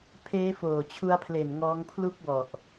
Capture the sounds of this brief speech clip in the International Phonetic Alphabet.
pʰ eː˦˥ f oː˨˩ t͡ɕʰ u˧ a̯ pʰ l e˨˩ n ŋ ɔː˦˥ ŋ pʰ l u˥˩ k̚ w ɔ˨˩ ʔ

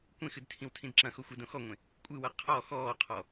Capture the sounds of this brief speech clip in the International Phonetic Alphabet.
kʷ ẽ x ɨ d tʰ ĩ w tʰ ĩ d ǁ ɐ̃ x o xʷ e d õ x ɔ ŋʷ ẽ | kʷʼ ɨ w ɐ qʰ ɔ x ɔː qʰ ɔ

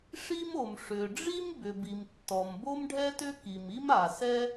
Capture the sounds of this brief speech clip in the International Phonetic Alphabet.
ʂ i˥ m o˩ m ʂ ʏ˩ ɖ͡ʐ i˥ m b ʏ˩ b i˩ m tː ɔ˩ m b o˥ m ɖʱ ɛ˥ t ʏ˥ k i˩ m i˥ m a˩ s ɛ˥

